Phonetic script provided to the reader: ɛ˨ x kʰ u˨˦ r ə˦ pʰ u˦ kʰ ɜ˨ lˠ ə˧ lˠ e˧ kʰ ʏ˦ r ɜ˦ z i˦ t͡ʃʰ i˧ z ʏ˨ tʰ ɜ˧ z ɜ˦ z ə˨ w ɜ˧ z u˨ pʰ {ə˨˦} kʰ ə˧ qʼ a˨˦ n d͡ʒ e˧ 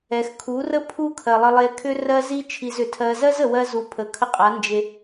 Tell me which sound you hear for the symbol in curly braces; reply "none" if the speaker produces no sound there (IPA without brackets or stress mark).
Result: ə˨